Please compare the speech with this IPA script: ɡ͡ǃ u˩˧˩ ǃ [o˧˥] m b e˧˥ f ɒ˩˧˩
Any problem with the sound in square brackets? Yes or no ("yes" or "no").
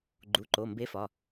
yes